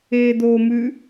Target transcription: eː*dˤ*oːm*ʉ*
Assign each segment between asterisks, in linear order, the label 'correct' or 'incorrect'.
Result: incorrect, correct

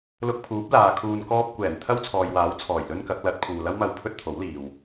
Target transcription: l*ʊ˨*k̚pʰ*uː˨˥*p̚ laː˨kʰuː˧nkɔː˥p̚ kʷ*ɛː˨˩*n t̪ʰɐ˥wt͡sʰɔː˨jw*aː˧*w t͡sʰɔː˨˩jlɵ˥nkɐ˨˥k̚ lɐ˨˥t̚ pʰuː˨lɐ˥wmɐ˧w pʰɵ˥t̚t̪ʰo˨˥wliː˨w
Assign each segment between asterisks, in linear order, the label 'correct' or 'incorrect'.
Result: incorrect, correct, correct, incorrect

